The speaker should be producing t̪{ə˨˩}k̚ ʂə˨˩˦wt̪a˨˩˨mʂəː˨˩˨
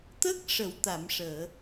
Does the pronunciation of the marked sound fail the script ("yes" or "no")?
yes